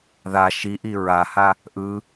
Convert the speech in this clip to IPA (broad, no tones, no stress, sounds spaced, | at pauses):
ð a ʃ i ʔ i ɹ a h a | ʔ ɯ